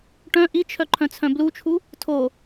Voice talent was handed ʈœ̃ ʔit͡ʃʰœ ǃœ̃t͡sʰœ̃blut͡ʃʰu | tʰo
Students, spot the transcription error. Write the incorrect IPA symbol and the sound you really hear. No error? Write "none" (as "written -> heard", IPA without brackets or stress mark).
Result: ǃ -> ǃʰ